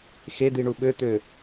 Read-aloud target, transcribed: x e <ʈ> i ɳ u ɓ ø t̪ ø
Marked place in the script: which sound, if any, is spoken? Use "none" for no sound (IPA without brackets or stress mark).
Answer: d̪